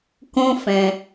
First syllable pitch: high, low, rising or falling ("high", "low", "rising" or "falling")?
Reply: high